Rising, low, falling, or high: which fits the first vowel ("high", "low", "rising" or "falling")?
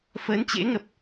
rising